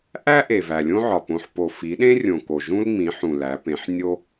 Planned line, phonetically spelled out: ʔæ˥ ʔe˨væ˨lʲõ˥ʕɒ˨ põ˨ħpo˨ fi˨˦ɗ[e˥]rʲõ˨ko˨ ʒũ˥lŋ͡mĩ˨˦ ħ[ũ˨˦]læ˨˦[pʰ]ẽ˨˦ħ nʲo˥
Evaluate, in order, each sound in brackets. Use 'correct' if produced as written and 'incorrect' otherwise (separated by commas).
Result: incorrect, incorrect, incorrect